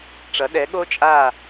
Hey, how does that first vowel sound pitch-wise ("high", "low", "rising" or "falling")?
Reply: rising